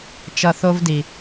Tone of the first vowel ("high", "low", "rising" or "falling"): low